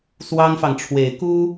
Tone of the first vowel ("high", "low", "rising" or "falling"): high